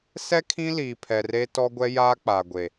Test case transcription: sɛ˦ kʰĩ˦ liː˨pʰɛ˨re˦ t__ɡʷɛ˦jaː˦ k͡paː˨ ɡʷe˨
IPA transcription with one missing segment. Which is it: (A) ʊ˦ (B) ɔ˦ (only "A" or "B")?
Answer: B